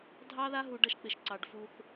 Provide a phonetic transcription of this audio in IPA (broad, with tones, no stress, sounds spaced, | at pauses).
dʱ ɑ˦ ð a˦ ɦ u˨ ɖ ʌ˦ ʃ k͡p ɪ˨ ʃ ǀ ɑ˨ ɖ f u˦ θ